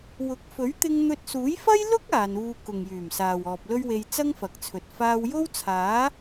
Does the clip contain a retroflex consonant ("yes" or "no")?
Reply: no